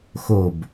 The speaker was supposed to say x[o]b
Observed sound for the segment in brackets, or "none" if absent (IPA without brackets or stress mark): o